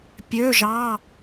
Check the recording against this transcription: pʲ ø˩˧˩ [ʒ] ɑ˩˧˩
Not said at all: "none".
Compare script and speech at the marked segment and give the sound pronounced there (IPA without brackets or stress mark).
ʒ